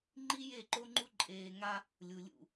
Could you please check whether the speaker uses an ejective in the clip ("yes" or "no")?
yes